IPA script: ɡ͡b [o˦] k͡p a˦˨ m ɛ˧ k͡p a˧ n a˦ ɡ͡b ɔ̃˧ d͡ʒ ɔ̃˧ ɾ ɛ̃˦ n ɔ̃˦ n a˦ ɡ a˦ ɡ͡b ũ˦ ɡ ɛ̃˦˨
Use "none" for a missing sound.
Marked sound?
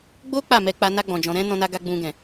o˦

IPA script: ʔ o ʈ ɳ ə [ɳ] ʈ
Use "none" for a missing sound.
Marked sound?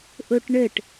none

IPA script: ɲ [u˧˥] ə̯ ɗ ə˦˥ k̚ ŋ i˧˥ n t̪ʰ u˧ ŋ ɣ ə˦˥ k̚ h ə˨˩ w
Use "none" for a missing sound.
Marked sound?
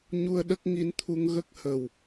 u˧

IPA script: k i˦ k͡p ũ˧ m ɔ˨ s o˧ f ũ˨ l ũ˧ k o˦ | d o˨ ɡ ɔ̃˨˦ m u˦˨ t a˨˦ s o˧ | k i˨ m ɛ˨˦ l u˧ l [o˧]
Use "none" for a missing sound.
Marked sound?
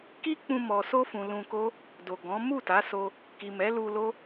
o˦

